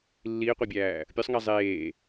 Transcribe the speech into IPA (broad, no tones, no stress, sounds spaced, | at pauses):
lː iː qʷ æ bʲ æː | pʲ o sˤ ŋ æ zˤ eː